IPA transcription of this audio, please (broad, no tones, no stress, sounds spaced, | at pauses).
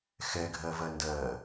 x ɛ ɡʱ ɜ v ɜ n d ɜ